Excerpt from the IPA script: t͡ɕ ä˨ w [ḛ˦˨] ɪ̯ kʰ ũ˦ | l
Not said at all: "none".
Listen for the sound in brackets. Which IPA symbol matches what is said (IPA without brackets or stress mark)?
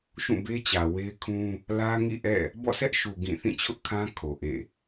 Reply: e˦